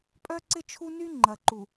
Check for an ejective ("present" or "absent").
present